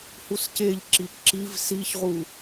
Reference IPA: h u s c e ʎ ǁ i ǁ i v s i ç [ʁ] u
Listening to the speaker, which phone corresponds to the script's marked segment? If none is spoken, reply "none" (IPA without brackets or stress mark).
ʁ